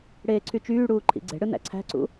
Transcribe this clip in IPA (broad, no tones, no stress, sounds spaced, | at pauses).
ɽ eː ǀʰ y t͡ʃ yː ɽ uː ǃʰ ḭ ɡ͡ǀ e̤ ɽ ɯ n æ̰ ǀʰ æ̤ ǀ ṵ